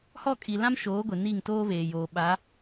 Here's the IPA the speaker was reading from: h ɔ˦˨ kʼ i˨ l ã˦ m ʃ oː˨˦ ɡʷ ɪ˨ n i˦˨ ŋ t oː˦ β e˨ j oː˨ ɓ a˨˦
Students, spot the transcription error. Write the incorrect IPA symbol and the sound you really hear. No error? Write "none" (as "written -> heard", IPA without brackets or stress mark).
e˨ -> eː˨